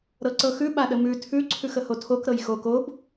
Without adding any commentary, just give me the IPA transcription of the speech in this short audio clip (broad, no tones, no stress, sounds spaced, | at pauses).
ɾ ɤ ǀ ɤ x ʉ ɓ a ɗ ə m ʉ tʰ ʉ ǀʰ ʉ x ə h o tʰ o k ɾ ɤ j x o k o b